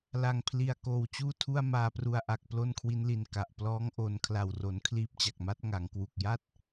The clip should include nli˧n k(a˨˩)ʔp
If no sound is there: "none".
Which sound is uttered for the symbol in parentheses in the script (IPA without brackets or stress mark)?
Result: a˨˩